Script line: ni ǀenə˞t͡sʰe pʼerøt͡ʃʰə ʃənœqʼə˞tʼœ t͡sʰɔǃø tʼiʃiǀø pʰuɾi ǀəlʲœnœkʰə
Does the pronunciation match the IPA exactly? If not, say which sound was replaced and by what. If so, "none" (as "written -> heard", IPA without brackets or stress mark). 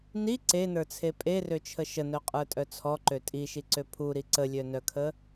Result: none